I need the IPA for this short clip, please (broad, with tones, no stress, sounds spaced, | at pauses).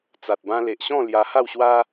t͡s a˨ t̚ b ã˧ l e˨ ʔ ɕ ɔ̃˥˧ l j a˧ h a˥˧ w ɕ w a˦